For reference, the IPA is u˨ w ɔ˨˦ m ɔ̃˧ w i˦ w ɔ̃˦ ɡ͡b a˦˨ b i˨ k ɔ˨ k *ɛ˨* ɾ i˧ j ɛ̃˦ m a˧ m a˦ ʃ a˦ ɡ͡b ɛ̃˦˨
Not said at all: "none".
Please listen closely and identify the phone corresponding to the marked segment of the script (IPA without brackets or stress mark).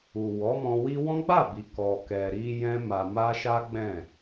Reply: ɛ˨